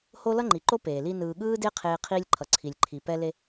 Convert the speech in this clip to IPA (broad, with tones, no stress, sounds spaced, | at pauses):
h o˦ l ʌ˦ ŋ͡ǃ i˨ ǃ o˦ p eː˨ l i˦ n ɯː˨ ɠ ɯː˦ d e˦ qʰ eː˦ qʰ iː˦ lʲ ǃʰ ʌ˨ ǀʰ i˨ lʲ ǃʰ i˨ p ɛ˦ l e˦